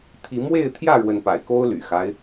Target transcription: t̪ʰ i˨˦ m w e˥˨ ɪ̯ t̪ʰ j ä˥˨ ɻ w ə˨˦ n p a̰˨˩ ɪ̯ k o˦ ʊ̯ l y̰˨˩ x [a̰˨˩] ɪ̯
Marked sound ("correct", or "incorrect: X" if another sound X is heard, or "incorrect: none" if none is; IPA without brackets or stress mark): incorrect: a˦